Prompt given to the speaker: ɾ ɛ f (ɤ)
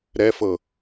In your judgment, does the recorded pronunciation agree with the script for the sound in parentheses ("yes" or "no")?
yes